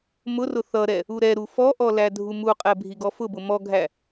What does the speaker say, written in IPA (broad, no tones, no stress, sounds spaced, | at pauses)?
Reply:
m ʊ r ʊ θ ʌ ɾ ɛ | u ɾ ɛ ɾ u f ɔ ʔ ɔ l æ dʱ u m u qʼ ɛ bʱ i ɡ ɔ f ʊ b ʊ m ɔ ɡʱ æ